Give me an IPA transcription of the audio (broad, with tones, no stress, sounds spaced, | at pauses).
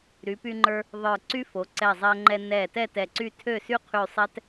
ɾ y˩˧ p y˧ ŋ͡ǃ ə˞˧ | ðˤ ə˞˧˩ ǀ y˥ f o˩˧ ǀ ɛ˧˩ zˤ ɛ˧ ŋ͡ǃ ɛ˧ n ɛ˧˩ t ɛ˥˧ t ɛ˧˩ ǀ y˥˧ tʰ ø˥˧ s y˥ qʰ y˥˧ sˤ ɛ˥ t